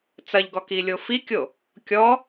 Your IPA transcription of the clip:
t͡sɐʎɡɔ kilʲofikʲo | kʲɔ

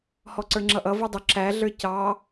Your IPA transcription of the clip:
hɔǀə˞ŋ͡ǁʌʔʌ vudˤʊ ǁæ ɮə˞cɑ

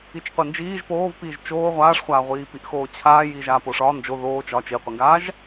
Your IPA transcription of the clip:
it͡ʃqʷind͡ʒiːʒ poːvpiːʒ t͡ʃoː ʁʷaːʂχʷaːʁʷiːpiʔ xoːt͡ɕʰaː jiːʒaːpoʂɒ nd͡ʒo ðoː t͡ʃɒ t͡ʃiqʷiŋɡaːʒ

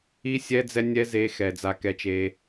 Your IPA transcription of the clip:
i˦sʲɛ˦d͡zɛ˦nʲɛ˦ ze˧xɛ˨ d͡za˧kɛ˧t͡ʃe˧

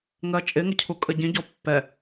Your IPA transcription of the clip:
ŋɜt͡ʃʼɪŋə cʰukʼəɟĩɟɔ pːɛ

